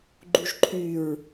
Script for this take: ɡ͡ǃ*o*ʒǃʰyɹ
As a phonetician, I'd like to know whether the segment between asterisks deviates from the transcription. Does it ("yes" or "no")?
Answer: yes